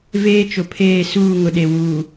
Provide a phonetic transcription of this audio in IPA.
veː˦t͡ʃʊ˨pʰeː˦˨ suː˦˨ŋʊ˨ɗe˨ wuː˨

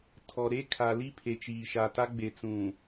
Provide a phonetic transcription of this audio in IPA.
tʰɔ˨ɾe˦ kʰa˨li˦ pʰe˨t͡ʃiː˨ʃa˨ta˦ ɡ͡be˨t͡sũ˨

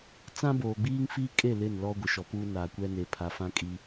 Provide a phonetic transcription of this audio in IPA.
t͡sã˦boː˨ɡ͡biː˦ŋ fiː˦kʼe˦˨ lɪ˦˨nlɔ˦ ɡʷɪ˨ʃɔ˨puː˦ naː˨kʷɛ˦ne˨ pʰa˨fã˦kʼi˦

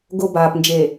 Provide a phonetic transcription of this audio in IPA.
ɡo˨ baː˨p nd͡ʒe˨

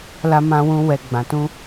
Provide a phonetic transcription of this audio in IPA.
la˧mã˧wũ˧ wɛ˨ ɡ͡bã˨tũ˧

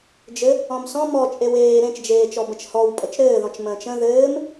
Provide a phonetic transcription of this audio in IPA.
d͡ʒɘ | ɔ̃msɔ̃ mɔ t͡ʃʼeweː ɾẽt͡ʃd͡ʒeːt͡ʃɔbə̃t͡ʃ hɔw pʼət͡ʃɾɘːðɔ̃t͡ʃ mə̃ːt͡ʃə̃ ðɘːm

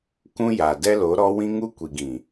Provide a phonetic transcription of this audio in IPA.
kũ˦ja˨ dɛ˦lo˨˦ɾɔ˦ wĩ˦ŋu˦ kʷi˨ɡĩ˨

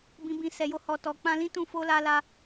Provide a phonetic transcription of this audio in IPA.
bĩ˧bĩ˧ sɛ˨jo˧hɔ˨tɔ˨ k͡pã˧lĩ˦tũ˦˨ fo˧ la˧la˧

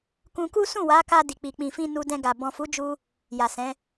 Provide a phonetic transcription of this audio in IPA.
kũ˧ku˦ sũ˦˨wa˨˦ka˧ di˨k͡pi˨k͡pĩ˨fĩ˧ nu˧dɛ̃˧ɡa˨ bɔ̃˨fu˨˦d͡ʒu˧ | ja˨sɛ̃˨˦

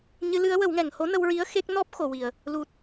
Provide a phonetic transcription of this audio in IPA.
ɲɨ˧˥lɨ˧˥ə̯ wə˨˩˦wŋɛ˨˩˨ŋ ho˧˥nə˧wɹi˧˥ə̯ xe˦˥k̚ nɔ˦˥p̚ xo˨˩˨wi˨˩˨ə̯ | lu˨˩t̚

